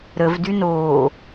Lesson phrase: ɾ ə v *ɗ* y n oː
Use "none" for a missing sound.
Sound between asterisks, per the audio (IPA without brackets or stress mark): d